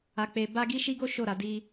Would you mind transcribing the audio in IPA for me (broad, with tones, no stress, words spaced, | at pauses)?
a˧k͡pe˧ ba˦ ɡi˦ʃi˦ɡo˦ ʃo˦˨ɾa˨˦ di˦